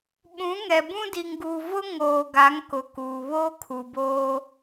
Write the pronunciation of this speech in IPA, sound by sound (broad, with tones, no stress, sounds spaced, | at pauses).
ɓ ũ˨˦ ŋ ɛ˨ b ũ˦ d i˨ ŋ ɡ u˨ v ʊ˦ ŋ oː˨ ɡ a˨˦ ŋ k ʊ˨ k uː˨ β oː˦ kʰ u˨ b oː˦